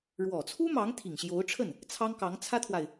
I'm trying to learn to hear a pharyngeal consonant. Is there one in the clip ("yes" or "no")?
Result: no